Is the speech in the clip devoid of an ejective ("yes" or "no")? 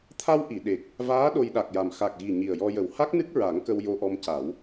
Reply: yes